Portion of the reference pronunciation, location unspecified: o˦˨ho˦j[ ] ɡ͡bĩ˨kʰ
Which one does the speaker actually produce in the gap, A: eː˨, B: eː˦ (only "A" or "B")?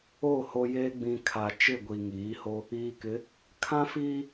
B